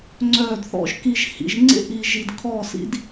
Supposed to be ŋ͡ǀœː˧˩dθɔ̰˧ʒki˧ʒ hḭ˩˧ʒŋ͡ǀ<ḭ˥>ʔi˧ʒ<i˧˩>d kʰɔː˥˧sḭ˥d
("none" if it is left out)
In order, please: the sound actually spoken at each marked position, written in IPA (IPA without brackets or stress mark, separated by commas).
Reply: ḛ˥, i˧